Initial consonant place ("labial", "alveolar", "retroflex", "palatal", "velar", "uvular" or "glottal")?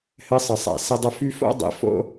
glottal